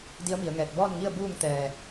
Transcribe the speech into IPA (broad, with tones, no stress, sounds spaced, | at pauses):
d i˧˥ ə̯ m i˩˧ ə̯ ŋ ɛː˧˩ t̚ b ɔː˥˨ n ŋ i˥˨ ə̯ b uː˥˨ ŋ t̪ ɛː˧˩